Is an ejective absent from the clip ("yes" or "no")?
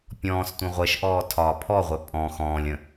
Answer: no